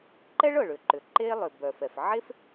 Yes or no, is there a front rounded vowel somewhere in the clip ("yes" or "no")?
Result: yes